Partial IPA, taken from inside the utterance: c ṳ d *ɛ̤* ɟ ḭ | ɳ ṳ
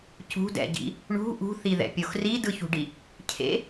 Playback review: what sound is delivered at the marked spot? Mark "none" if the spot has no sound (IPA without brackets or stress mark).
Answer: ɛ̰